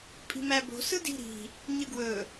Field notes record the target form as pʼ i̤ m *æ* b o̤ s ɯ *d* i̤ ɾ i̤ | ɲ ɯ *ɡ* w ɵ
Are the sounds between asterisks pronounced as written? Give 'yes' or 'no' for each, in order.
yes, yes, yes

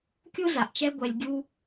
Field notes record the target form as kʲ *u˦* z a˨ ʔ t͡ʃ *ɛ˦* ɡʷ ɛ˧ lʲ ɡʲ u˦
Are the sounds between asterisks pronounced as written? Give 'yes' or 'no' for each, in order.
yes, yes

